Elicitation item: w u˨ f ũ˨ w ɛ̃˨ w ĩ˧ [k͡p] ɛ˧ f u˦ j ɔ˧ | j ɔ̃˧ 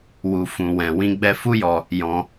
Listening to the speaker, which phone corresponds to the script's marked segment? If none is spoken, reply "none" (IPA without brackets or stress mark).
ɡ͡b